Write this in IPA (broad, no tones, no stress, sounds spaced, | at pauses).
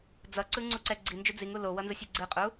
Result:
d͡z ʌ ǀ ɯ ŋ͡ǀ u ǀ ɛ ɡ͡ǀ i n d͡ʒ u d͡z i ŋ u l o w ʌ n z ɯ sʲ i ɡ͡ǀ ɯ qʼ u